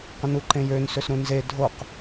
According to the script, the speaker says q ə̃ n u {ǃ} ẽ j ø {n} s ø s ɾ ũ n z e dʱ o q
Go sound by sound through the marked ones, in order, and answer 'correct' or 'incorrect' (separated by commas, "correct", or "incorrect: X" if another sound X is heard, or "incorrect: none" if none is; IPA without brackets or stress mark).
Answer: correct, correct